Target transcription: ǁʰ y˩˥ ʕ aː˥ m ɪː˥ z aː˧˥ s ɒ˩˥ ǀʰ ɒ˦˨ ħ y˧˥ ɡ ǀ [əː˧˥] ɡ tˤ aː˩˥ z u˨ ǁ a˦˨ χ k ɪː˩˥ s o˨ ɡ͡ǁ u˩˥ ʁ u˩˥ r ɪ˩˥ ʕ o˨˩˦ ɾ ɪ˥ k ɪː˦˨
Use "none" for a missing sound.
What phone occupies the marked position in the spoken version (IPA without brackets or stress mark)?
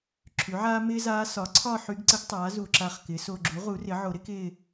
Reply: ə˧˥